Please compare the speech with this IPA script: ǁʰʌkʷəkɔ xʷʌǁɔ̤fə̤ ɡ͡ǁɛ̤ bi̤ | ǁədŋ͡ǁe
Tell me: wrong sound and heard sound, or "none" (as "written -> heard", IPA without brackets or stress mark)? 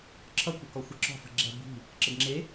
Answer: none